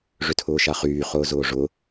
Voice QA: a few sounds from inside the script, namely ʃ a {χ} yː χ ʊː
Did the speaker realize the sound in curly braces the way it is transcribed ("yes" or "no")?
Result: yes